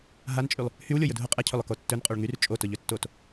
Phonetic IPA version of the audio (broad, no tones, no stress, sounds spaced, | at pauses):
ɦ a n t͡ʃʼ y lˠ | h y w lʲ o j ʊ dʱ ʊ qʼ ɛ cʰ ɵ lˠ ʊ k o tː ɵ n qʼ o ɭ ŋ y r t͡ʃʼ o t ʊ ʎ ɵ tː o t